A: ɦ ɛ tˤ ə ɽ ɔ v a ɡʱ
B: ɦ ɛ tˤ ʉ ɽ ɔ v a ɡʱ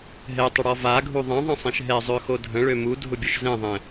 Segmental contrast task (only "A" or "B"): A